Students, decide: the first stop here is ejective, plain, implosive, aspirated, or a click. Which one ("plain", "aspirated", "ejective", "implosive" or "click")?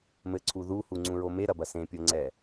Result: click